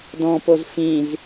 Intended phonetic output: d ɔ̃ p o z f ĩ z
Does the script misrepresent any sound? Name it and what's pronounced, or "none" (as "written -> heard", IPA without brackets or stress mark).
none